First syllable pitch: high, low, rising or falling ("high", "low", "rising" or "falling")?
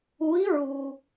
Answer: rising